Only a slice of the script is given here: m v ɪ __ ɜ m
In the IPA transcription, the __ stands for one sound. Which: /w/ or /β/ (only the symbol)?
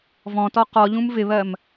β